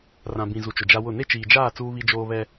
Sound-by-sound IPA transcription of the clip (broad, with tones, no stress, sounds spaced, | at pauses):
r ã˨ b ĩ˨ z u˨ t͡ʃ ʊ˨ d͡ʒ a˦ w ʊ˦˨ n e˦ t͡ʃ iː˨ d͡ʒ aː˦˨ t͡s uː˦ β i˦ d͡ʒ oː˦ β ɛ˦